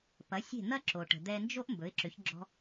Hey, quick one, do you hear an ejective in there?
no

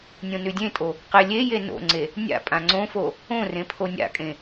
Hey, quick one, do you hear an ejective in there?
yes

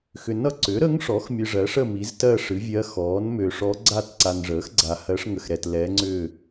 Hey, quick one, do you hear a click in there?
yes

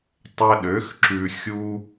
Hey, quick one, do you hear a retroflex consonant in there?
no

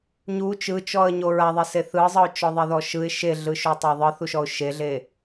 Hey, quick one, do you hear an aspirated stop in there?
no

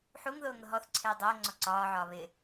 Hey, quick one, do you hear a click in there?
yes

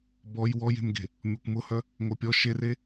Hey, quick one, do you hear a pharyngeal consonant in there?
no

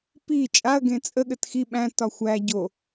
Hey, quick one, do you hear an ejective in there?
yes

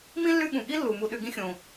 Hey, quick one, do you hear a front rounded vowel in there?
yes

